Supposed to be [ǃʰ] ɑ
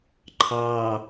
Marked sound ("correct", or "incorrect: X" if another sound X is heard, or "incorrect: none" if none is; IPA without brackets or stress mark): correct